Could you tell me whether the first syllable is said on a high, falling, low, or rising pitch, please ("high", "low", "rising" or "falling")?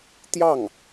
falling